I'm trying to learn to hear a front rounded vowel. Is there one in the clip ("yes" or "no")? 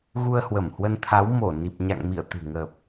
no